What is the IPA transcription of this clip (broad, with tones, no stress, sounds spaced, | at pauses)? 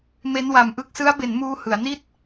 m e˦˥ n w a˨˩ m ʔ ɯ˥˩ k̚ s ɯ˦˥ a̯ b e˩˦ n m uː˧ h ɯ˩˦ a̯ n i˥˩ t̚